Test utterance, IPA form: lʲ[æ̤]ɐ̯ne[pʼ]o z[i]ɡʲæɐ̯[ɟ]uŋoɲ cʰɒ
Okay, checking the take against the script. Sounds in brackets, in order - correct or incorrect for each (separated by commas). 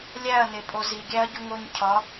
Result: incorrect, correct, correct, correct